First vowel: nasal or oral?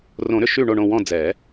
nasal